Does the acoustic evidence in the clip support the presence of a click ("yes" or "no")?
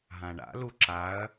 yes